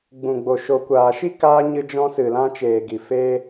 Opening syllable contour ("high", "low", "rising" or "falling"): low